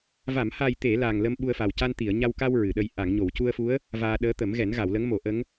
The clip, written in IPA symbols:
v a˨˩˨ m h a˨˩ j t̪ e˨˩˨ l aː˨˩ ŋ l ə˧ m ɓ u˧ ə̯ f a˨˩ w c a˧ n t̪ i˨˩˨ ə̯ ɲ a˧ w k a˧ w ɹ ɨ˨˩˨ ɗ ə˧ j ʔ a˨˩˨ ŋ ɲ o˨˩˨ w c u˧ ə̯ f u˧˥ ə̯ | v aː˧ ɗ əː˧˥ t̪ ə˨˩˦ m ɣ ɛ˨˩˦ n ɣ a˨˩˨ w l ə˧˥ ŋ m o˨˩˦ ʔ ə˧˥ ŋ

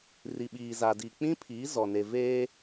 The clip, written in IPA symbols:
r i˨ ɓ iː˨ z a˨ d i˨ k͡p ĩ˦ pʰ iː˨˦ z ɔ˨ n e˨ v eː˦

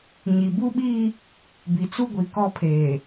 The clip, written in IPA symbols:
ɲ i˨ b u˦ ɓ iː˦ | b i˨ t͡s u˦ ɡʷ i˨ k ɔ˦ pʰ eː˨

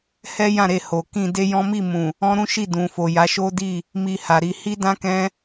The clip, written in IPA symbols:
h ɛ˦ j ã˦˨ ɾ e˧ h o˨ k ĩ˧ d e˦ j ɔ̃˦ m i˦˨ m ũ˨ | ɔ̃˦ ɾ ũ˦ ʃ i˦˨ d ũ˨ f o˨ j a˨˦ ʃ o˦ d i˦˨ | m i˧ h a˨ ɾ i˧ h i˦ d ã˦ k ɛ̃˦

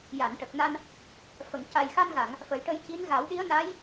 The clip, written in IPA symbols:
j a˨˩˨ n ʈ ə˨˩ k̚ n a˧ n | f ə˨˩˨ ŋ c a˨˩ j x a˧ n ɣ a˨˩˨ ŋ | f ə˨˩˦ j ʈ ə˧ j c i˧˥ n ɣ a˨˩˦ w ɗ i˧˥ ə̯ n a˧˥ j

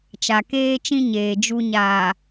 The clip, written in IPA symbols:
t͡ʃ a˨ k eː˦ t͡ʃ ĩ˦ ɲ eː˨ d͡ʒ u˨ ɲ aː˨

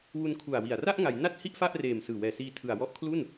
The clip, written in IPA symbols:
w u˧ n kʰ u˨˩ a̯ w i˨˩ a̯ r a˥˩ ʔ ŋ a˩˦ j n a˦˥ t̚ h i˥˩ ʔ f a˥˩ ʔ r eː˨˩ m s ɯː˨˩ w ɛː˨˩ s iː˧ tʰ ɯ˨˩ a̯ w ɔ˦˥ ʔ kʰ l u˥˩ n

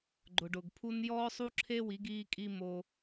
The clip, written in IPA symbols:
ɡ͡ǃ ʊ˨ ɖ ʊ˨ ɡ pʰ u˦ n j ɔː˦ sˤ u˦ ǁʰ e˦ w i˨˦ ɡ iː˧ kʼ i˧ m o˧

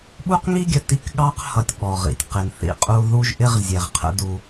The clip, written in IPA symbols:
ɓ u˦ q ŋ i˦ ɡʲ ə˨ t i˦ k ɠ ɑ˦ q h ʌ˨ tʲ ɓ ɔ˨ ʁ ḭ˨ tʲ q ɪ˨ n θ ḭ˦ qʼ u˦ ð u˦ ʒ ʔ ɪ˦ ʁ zʲ ɛ˨ ʁ qʰ ə̰˦ d u˦

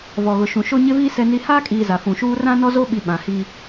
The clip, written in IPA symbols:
v ɔ˨ ɣ ʊ˨ ʃ ũ˨ ʃ o˦ ɲ ɪ˦ v iː˦ s ɛ˨ n i˨ h aː˦ kʼ iː˨ z a˨ f ũ˨ ʃ uː˦ r ã˦ n ɔ˦ z o˦ ɓ i˨ ɓ ã˨ h i˦

